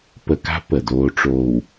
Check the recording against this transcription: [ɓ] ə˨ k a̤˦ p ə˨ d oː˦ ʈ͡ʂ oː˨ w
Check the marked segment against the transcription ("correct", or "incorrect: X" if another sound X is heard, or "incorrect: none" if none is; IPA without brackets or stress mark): incorrect: p